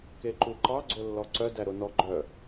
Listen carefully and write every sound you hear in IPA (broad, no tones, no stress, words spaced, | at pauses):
keǃuǃɑ ɡ͡ǀolːɔǀœ dæɾonɔ ɡ͡ǃœ